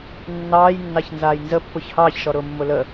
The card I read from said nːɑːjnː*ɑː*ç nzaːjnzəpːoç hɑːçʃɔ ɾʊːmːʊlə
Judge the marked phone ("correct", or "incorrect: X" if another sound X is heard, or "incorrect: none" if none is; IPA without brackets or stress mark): incorrect: ɑ